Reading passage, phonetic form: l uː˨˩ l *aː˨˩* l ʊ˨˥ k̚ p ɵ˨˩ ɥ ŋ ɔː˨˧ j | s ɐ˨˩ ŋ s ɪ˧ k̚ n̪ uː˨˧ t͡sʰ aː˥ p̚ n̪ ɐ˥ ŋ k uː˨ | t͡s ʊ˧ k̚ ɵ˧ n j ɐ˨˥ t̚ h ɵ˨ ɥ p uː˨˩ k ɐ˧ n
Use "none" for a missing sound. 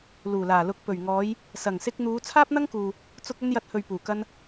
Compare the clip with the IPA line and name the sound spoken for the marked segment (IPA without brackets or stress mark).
aː˨˩